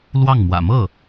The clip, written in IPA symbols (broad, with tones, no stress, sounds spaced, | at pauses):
l w ɑ˥˩ ŋ m w ä̰˨˩ m ɤ˥˩